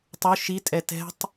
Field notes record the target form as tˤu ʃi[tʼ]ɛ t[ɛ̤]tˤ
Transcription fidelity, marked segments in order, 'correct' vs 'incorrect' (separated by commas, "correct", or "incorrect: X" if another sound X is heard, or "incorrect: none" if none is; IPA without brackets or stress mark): correct, correct